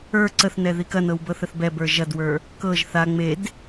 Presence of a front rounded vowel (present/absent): absent